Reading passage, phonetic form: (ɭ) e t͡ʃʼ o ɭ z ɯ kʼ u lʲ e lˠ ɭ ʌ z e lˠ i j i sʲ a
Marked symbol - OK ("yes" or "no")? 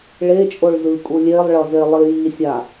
yes